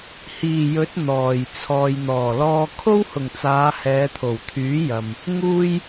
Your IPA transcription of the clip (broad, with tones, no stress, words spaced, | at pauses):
hiː˨˩jɵ˨˥t̚ n̪ɔː˨˩j t͡sʰɔː˨jn̪ɔː˨˩lɔː˧ kʰo˥whʊ˨˩ŋt͡saː˨˧ hɛː˨˧t̪ʰo˨˩wt̪ʰyː˨˥jɐ˨m | ŋuː˥j